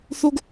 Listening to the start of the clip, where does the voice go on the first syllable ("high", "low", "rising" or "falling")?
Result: high